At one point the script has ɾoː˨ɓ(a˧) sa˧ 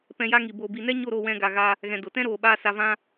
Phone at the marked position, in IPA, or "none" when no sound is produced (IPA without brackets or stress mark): aː˧